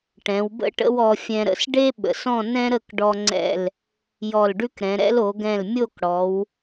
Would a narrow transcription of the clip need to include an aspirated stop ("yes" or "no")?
no